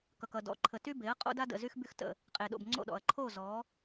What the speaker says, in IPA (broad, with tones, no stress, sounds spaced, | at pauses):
k ʌ˨ k ʌ˨ d ɔ̰˨˦ ǃʰ ə˨ t y˦ b e˨˦ ɐ̯ qʼ o̰˦ d a˦ d ə̰˨ z y˦ x b y˦ x t ə̰˦ | qʼ e˨ ɗ o̰˨ b ŋ͡ǀ o̰˦˨ ɗ ɔ̰˨ ɐ̯ ǃʰ o˦˨ z ɔ˨˦